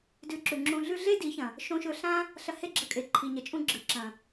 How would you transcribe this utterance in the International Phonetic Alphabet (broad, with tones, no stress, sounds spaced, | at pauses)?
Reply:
d ʉ˧ ǁ ʉ˨ ŋ͡ǁ ũ˧ ɮ ʉ˦ ɮ e˦ d i˨˦ ç ɐ̃˨ | ʃ õ˧ ʃ ɵ˧ ɬ ã˦ | ɬ ɐ˧ h e˦˨ ɡ͡ǁ ɐ˧ kʼ e˨ ǃʰ i˨ ɲ ɐ˨ t͡ʃʼ ũ˦ ɡ͡ǁ ɨ˨ ǁ ɐ̃˨